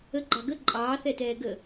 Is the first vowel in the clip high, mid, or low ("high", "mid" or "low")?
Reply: mid